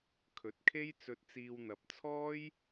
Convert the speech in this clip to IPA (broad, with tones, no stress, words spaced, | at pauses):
kʰɵ˨˥t̚kʰe˥jt͡sɵ˧t̚t͡siː˧w n̪ɐ˨p̚t͡sʰɔː˥j